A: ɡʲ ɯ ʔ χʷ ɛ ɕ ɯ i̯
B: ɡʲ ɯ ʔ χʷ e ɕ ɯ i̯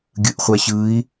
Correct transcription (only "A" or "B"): A